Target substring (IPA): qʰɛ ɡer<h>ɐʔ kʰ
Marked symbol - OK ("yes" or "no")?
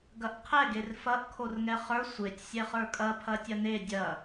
no